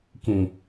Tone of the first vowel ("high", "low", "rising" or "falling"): low